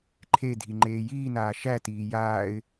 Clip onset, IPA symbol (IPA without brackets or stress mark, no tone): ǃʰ